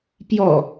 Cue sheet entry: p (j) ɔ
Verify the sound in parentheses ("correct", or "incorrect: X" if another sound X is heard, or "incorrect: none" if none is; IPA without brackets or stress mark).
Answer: correct